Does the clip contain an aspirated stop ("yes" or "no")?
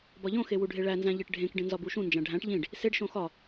no